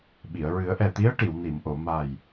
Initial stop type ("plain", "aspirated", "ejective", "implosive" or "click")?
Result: implosive